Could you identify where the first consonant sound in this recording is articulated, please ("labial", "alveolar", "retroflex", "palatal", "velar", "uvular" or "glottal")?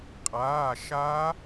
uvular